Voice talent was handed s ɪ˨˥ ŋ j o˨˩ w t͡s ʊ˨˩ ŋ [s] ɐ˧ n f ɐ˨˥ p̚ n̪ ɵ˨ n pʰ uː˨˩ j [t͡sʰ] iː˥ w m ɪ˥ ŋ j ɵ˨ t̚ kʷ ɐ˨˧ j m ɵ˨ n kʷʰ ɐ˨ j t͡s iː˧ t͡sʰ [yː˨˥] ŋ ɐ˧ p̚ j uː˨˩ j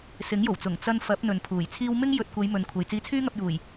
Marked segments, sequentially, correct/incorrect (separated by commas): incorrect, correct, incorrect